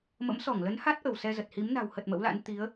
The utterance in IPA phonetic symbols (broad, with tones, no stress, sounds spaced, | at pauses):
m ə̰˧˥ m s ɔ˧˩ ŋ l ə˨˦ n h a˦˥ t̚ ʔ ə˧˩ w s ɛ˧ z ə˨˩ t̚ h i˨˦ m n a̤˨˩ w h ə˨˩ t̚ m ə̰˧˥ w l a̰˧˥ n t̪ i˨˦ ə̯